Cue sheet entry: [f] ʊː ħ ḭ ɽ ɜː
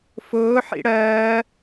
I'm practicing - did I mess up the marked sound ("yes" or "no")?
no